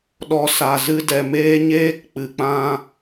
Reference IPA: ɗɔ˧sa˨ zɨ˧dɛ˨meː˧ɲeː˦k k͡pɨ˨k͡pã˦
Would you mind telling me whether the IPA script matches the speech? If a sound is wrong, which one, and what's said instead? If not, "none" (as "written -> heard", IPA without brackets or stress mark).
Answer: none